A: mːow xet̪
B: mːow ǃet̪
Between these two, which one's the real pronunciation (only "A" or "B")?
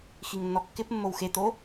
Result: A